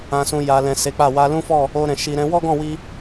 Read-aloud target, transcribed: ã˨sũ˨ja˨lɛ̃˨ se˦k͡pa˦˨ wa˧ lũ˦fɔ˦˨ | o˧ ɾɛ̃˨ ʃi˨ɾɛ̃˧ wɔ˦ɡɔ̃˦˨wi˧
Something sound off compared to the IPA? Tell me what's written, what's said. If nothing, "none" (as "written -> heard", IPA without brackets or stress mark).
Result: e˦ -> e˨˦